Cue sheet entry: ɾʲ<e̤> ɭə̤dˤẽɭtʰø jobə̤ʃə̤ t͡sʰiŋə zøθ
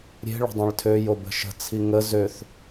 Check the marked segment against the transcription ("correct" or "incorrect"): correct